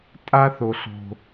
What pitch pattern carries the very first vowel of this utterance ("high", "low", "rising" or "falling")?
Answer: high